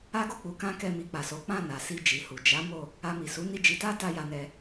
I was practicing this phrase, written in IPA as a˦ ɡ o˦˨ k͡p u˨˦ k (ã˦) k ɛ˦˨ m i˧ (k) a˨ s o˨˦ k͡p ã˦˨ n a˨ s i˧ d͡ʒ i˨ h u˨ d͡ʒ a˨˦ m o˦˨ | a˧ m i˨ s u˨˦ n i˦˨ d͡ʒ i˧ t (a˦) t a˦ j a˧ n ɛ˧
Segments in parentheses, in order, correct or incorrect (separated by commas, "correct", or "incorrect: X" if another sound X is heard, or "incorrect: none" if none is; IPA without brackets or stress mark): correct, incorrect: k͡p, correct